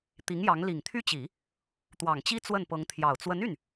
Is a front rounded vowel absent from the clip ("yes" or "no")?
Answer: no